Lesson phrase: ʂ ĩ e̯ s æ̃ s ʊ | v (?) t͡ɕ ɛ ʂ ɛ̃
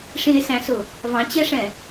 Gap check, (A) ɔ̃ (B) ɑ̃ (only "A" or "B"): B